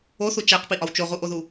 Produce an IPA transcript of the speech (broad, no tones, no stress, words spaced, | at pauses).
oθu t͡ʃæqpiʔɒw t͡ʃoʁuʔoðu